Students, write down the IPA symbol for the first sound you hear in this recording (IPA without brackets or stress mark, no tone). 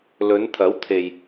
l